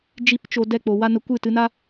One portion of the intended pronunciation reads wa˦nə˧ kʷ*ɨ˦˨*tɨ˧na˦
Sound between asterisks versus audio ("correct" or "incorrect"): correct